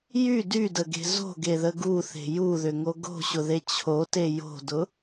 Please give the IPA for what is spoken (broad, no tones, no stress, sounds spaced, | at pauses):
j y d y d ə ɡ e̤ z o̤ ɡ e ð ə ɡ u θ e̤ j u ð ʏ ŋ o ɡ o̤ ɕ ʊ ð e t͡ɕʰ o t e j o̤ d ʊ